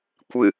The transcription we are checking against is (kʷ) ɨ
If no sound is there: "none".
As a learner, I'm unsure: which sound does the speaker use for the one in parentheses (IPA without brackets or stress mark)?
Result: kʷ